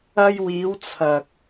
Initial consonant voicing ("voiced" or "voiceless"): voiced